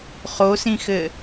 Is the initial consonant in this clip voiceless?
yes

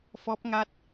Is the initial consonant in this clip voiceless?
yes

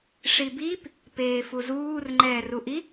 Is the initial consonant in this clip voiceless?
yes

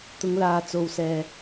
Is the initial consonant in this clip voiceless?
yes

